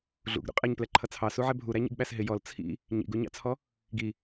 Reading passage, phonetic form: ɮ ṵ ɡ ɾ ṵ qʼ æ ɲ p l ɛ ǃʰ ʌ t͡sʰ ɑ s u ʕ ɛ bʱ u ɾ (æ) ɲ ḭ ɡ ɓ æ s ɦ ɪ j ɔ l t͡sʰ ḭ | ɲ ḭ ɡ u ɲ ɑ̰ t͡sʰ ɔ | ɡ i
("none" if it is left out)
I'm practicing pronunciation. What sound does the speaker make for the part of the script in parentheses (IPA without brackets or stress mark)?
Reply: æ